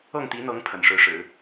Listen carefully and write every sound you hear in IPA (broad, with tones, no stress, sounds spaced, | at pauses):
ɤ˥˩ ŋ t̪ i˧˥ n̪ ɤ˧˥ ŋ pʰ ə̰˨˩ n ʂ ɻ̩˧˥ ʂ ɻ̩˨˩˦